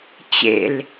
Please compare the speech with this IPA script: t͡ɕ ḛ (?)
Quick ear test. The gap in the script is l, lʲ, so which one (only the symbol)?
l